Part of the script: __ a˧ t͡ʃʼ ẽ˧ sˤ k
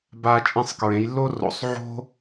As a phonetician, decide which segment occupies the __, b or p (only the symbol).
b